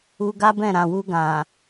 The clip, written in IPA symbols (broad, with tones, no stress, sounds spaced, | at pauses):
u˧ ɡ a˦ b ɛ̃˦˨ ɾ ã˨ w u˧ ɡ ã˨